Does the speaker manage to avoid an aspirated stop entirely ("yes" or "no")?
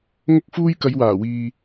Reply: yes